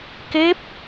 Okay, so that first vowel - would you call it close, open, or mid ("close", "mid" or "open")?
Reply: mid